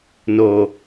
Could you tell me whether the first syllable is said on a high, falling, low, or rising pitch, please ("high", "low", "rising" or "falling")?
low